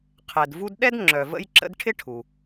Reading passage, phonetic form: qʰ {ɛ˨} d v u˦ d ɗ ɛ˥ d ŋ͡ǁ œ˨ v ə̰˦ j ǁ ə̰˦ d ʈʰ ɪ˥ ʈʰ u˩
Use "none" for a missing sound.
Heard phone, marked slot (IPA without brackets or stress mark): ɛ˨